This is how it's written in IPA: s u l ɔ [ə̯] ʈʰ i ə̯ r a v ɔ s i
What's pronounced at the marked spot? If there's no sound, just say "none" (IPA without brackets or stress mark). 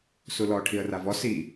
none